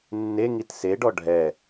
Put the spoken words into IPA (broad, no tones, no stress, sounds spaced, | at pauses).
nː e ŋ i t s e ɖ ɔ ɖʱ ɛ